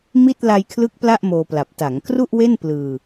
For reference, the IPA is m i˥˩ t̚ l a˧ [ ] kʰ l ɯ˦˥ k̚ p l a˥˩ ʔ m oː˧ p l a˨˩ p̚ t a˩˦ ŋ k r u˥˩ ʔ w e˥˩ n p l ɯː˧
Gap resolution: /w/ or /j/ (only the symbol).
j